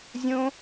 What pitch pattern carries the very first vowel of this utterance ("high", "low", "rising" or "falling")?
high